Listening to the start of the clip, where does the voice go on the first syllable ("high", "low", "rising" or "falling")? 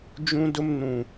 high